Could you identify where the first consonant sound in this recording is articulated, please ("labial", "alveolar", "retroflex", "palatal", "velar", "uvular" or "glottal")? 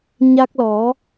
palatal